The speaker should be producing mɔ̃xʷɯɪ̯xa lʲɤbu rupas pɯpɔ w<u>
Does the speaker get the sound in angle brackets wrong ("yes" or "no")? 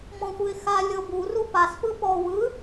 yes